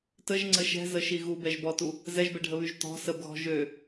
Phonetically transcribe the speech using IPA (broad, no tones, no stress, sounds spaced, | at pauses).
t ə ʒ ŋ͡ǀ ə ʃ ɛ̤ z ə ʃ i ɣ u b ɛ ʒ b ɔ t u | z ɛ ʒ b ɛ ɖʱ ə β y ʒ t ɔ̤ s ə b ɣ ɔ̤ ʒ ø